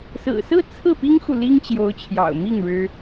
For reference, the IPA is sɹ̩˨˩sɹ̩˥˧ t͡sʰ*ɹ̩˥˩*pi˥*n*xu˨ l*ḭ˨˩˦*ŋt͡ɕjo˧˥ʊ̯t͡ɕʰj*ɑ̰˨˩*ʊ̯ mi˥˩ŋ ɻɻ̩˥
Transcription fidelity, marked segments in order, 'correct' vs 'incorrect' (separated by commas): correct, incorrect, incorrect, correct